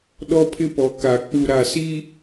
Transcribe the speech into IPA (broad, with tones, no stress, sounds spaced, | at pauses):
ɗ ɔ˦ pʰ ɪ˦ p ɔ˨ k a˨ k͡p u˨ ɾ a˨ s i˦